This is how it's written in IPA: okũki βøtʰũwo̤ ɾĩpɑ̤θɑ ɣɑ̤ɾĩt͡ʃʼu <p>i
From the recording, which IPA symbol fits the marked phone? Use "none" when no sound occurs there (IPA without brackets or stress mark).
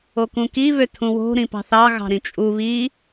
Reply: β